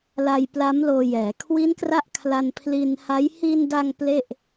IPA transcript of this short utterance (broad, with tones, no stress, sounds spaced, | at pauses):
l a˧ j p l a˦˥ m l oː˧ j ɛː˩˦ kʰ w i˦˥ n k r a˦˥ ʔ kʰ l a˧ n pʰ l i˧ n h a˦˥ j h i˧ n d a˧ ŋ p l e˥˩ ʔ